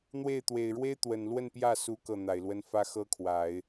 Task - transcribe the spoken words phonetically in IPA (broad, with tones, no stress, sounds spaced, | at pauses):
n̪ w e˥˩ ɪ̯ t̪ w e˨˩ ɪ̯ ɻ w e˥ ɪ̯ t̪ w ə˨˩ n l w ə˥˧ n p j ä˥˩ s u˧˥ k ɤ˥˩ n̪ a˨˩ ɪ̯ l w ə˥ n f ä˥ x ɤ˥ kʰ w a˨˩˦ ɪ̯